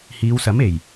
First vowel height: high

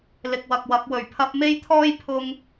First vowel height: high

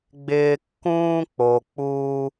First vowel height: high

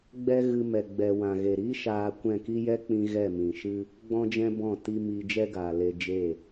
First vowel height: mid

